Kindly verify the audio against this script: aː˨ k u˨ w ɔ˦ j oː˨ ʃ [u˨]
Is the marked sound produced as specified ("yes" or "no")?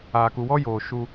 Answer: no